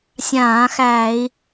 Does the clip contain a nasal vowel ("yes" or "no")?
yes